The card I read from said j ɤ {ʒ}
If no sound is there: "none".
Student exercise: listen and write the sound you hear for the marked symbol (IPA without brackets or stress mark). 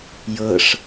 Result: ʂ